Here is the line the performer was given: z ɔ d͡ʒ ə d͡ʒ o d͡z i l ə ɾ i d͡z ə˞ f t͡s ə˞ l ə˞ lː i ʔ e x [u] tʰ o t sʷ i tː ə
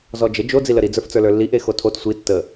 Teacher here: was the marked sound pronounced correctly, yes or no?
no